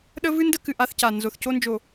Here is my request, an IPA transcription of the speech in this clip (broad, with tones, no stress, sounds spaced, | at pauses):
ɗ ə˦ v ɨ˦ n d ə˦ k ɨ˨ ʔ a˦ θ c a˨ n z o˨ θ c o˦ n d͡ʒ o˨